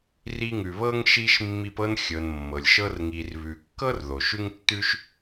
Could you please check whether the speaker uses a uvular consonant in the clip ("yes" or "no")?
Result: no